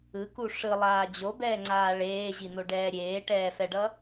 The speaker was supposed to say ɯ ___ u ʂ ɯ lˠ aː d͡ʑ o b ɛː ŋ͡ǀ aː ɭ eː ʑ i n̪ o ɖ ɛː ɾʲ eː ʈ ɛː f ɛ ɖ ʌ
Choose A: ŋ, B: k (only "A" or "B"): B